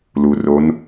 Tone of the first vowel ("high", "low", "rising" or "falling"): low